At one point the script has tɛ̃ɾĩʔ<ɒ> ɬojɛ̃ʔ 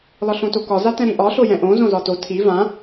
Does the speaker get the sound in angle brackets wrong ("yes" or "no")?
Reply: no